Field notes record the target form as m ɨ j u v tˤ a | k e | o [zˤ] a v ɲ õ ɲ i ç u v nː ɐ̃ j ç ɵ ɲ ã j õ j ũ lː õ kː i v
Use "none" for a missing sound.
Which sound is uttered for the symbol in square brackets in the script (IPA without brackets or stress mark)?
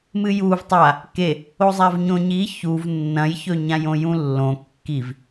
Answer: zˤ